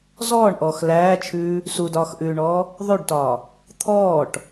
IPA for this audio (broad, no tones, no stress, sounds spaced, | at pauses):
z ɔː ɳ ʔ ɔː x l æː t͡ʃʰ ʉː | s u d ɒː x ʔ ʉː ɳ ɔː | ðˤ ʉ ɖ t ɒː | t̪ʰ ɔː ʈ